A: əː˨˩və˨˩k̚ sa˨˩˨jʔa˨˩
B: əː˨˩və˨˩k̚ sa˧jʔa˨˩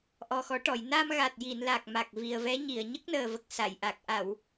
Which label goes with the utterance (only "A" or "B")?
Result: A